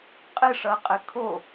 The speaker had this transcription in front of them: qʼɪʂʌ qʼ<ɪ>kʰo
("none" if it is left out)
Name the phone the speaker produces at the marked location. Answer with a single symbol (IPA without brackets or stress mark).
ɪ